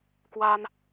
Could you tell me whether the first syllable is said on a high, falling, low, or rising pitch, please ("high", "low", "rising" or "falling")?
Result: high